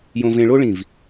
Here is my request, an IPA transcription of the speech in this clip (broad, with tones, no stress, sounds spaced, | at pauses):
j õ˧ v ẽ˧ ɭ o˥ ɭ ĩ˧˩ v